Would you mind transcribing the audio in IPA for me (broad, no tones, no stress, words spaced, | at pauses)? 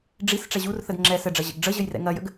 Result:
ɖ͡ʐis ʈ͡ʂɛʑurθəd ŋ͡ǁɛs ɘɖ͡ʐɐ ʑə̰ɡɖ͡ʐəʑɘj rɛ̰ŋɐjə̰ɡ